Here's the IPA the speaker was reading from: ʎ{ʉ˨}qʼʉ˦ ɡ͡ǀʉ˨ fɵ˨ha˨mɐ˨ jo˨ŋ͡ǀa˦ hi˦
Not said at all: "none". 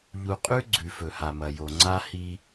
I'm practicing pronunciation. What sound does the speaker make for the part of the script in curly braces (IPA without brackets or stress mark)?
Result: u˨